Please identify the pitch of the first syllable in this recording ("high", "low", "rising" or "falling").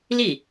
falling